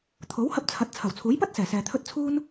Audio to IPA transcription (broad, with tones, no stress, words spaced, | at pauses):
t̪ʰo˨˥whɐ˧p̚ t͡sʰɐ˨˥t̚ t͡sʰɐ˨˩wt͡sʰuː˨˥jpɐ˥t̚ sɛː˨˩sɛː˨t̪ʰɵ˥t̚ t͡sʰuː˥n